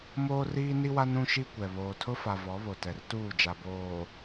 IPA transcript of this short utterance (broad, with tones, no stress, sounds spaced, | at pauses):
m oː˦ r iː˦ n i˦ w a˦ n ũ˦ ʃ i˦ kʷ ɛ˨ β oː˨ tʰ ʊ˦ f a˨ v ɔ˨˦ β o˨ t ɛ˨ r t uː˦˨ d͡ʒ a˨ b oː˨